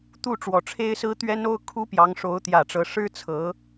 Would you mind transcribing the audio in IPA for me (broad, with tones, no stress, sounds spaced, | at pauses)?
t̪ u˥˩ ʈ͡ʂ w ɔ˨˩ ʈ͡ʂʰ e˥ ɪ̯ s ɹ̩˥ t̪ ɥ ɛ˥ n o˥ ʊ̯ kʰ u˥ p j ɑ˧˥ ŋ ʂ o˧˥ ʊ̯ t̪ j ä˨˩ ʈ͡ʂ ɤ˧˥ ʂ ɻ̩˥ t͡sʰ ɤ˧˥